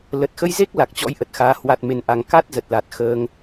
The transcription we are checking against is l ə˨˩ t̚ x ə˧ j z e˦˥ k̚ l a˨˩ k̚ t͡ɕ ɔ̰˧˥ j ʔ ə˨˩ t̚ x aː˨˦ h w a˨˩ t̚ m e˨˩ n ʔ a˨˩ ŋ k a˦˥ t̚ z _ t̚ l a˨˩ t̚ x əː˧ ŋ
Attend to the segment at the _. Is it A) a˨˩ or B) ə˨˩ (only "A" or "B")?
B